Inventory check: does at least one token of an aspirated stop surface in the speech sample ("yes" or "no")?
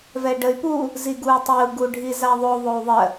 no